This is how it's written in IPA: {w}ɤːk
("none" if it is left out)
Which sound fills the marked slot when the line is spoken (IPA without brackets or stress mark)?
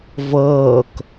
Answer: v